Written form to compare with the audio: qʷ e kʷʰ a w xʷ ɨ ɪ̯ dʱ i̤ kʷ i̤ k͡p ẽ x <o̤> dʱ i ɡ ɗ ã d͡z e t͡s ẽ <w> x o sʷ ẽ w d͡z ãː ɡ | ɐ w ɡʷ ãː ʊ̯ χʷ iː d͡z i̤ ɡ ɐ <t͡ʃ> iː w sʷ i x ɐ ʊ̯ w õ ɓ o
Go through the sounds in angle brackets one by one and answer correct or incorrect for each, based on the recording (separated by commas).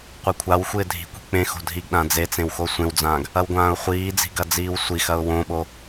correct, correct, incorrect